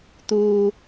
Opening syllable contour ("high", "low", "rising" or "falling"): low